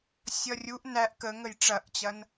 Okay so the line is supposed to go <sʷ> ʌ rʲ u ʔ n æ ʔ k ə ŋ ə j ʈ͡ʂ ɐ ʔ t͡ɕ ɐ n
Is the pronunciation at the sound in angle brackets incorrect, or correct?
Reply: incorrect